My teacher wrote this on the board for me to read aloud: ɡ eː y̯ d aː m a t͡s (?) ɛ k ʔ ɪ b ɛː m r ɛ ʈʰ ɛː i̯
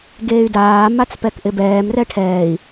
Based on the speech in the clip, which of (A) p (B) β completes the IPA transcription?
A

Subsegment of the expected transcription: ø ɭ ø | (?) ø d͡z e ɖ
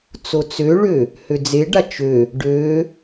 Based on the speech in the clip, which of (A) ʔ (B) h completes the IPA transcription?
B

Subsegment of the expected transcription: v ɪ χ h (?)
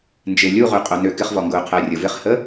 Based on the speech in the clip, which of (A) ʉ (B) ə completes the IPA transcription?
B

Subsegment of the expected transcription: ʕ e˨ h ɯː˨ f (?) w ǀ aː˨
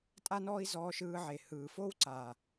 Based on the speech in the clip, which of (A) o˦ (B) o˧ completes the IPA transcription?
A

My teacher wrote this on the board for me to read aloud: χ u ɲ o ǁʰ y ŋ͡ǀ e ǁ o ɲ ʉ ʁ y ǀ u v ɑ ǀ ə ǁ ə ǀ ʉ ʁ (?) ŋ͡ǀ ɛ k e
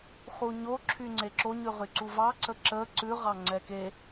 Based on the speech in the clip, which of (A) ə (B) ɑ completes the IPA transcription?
B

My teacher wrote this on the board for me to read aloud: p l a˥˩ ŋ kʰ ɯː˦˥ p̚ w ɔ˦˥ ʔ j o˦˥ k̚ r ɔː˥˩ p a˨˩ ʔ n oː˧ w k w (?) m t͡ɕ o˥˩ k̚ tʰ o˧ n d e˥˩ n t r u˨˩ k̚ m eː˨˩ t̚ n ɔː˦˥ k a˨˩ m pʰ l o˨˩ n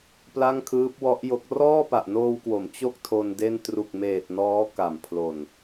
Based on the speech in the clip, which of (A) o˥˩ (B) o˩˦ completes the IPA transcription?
B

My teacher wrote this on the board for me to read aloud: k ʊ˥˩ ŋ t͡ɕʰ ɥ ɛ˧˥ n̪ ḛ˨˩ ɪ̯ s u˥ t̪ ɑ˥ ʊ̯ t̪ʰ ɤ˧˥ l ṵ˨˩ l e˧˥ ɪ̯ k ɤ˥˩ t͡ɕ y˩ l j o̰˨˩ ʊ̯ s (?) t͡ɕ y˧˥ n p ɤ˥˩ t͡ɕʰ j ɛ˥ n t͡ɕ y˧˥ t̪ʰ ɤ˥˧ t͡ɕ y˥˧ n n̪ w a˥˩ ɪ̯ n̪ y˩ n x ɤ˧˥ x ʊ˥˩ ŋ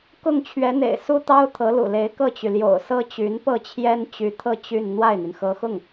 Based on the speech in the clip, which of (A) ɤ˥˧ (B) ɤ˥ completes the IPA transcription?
B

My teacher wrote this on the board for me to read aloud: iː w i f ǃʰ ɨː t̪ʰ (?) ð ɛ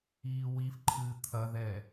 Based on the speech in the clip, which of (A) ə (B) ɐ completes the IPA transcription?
B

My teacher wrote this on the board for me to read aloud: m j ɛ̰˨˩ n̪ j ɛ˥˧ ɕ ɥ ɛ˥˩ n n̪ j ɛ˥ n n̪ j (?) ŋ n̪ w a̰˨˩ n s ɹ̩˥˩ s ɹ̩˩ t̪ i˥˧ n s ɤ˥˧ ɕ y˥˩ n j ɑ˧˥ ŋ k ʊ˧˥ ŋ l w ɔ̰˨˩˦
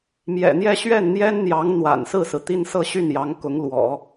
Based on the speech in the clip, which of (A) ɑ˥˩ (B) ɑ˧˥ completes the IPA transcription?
B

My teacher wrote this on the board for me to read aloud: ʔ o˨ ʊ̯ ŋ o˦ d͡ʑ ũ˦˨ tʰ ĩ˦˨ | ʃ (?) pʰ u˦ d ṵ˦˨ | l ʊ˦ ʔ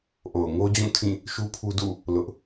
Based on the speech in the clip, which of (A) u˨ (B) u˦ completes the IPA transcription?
B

